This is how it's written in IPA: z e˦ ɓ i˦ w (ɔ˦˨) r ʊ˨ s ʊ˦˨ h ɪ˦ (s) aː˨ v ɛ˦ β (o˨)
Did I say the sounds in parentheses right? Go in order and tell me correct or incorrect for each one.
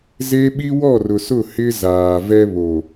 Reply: correct, incorrect: z, correct

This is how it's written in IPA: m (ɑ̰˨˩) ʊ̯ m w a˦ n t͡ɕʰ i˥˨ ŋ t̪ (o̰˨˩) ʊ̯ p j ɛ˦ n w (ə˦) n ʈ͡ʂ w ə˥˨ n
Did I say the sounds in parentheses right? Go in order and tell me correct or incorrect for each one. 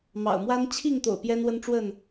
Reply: correct, correct, correct

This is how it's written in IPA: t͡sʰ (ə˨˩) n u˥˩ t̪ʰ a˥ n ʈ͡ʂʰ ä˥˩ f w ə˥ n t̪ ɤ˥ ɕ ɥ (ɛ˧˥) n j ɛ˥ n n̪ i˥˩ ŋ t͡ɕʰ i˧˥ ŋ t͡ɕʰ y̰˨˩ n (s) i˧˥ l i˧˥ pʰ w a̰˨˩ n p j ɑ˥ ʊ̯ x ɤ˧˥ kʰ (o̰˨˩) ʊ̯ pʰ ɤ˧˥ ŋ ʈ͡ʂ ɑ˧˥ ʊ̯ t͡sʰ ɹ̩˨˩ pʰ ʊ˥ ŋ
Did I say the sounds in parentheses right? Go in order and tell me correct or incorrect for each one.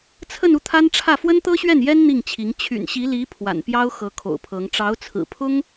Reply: incorrect: ə˥˧, incorrect: ɛ˥˩, incorrect: ɕ, correct

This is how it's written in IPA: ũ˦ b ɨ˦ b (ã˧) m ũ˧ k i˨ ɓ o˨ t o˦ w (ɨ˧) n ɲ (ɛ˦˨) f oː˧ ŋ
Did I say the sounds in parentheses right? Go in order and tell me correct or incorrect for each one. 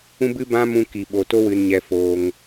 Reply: incorrect: ã˦, correct, incorrect: ɛ˧

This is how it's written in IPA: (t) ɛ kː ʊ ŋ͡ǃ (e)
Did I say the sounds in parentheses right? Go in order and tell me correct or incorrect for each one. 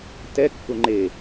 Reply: correct, correct

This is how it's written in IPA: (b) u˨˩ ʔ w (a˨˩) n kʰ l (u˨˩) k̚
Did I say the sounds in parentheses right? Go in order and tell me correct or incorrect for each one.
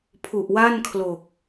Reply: incorrect: pʰ, incorrect: a˥˩, incorrect: o˨˩

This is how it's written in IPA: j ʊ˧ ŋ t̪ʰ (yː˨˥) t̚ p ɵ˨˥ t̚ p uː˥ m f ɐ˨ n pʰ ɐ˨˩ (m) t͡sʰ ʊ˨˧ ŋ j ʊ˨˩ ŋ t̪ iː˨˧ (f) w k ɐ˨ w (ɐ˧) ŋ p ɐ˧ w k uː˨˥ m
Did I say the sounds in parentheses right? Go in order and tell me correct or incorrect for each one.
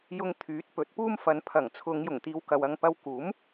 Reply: correct, incorrect: ŋ, incorrect: none, correct

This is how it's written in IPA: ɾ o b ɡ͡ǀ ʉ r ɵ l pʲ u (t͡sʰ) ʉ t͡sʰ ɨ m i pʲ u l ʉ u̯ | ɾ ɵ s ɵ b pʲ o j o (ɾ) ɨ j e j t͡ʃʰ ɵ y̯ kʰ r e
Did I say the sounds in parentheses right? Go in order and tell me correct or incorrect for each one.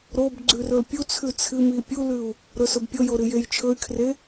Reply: correct, correct

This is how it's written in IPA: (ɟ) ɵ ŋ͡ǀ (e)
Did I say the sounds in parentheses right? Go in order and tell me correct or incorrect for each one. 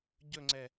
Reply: correct, incorrect: ɛ

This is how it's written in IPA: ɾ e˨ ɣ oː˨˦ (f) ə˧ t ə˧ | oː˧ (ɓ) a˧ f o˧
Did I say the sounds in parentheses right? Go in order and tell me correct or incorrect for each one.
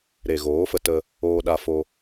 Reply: correct, incorrect: ɗ

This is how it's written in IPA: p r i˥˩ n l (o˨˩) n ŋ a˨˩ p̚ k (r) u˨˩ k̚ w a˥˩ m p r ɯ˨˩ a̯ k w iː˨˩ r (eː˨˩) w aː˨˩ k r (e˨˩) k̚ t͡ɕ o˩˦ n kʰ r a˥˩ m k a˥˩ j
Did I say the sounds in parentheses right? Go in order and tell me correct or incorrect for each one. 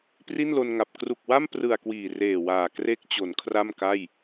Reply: incorrect: o˧, correct, correct, incorrect: e˦˥

